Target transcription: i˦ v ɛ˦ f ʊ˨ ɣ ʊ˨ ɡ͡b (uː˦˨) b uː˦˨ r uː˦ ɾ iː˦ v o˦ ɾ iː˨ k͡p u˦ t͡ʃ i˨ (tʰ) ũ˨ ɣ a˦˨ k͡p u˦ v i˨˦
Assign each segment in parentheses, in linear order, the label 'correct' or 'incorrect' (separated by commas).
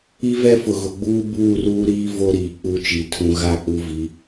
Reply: incorrect, correct